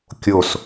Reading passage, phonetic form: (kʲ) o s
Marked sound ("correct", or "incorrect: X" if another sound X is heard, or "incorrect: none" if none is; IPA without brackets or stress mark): correct